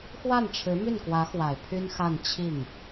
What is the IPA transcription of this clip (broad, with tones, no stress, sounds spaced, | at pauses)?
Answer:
x w a˥˩ n ʈ͡ʂʰ ɻ̩˧˥ m y˥˩ n k w ä˧˥ x w a˨˩ ɪ̯ pʰ y˥ n x a˥˧ n t͡ɕʰ i˥˩ ŋ